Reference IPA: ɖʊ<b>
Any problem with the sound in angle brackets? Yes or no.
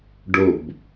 no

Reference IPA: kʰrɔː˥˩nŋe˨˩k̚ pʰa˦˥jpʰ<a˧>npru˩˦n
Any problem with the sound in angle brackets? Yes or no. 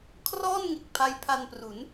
no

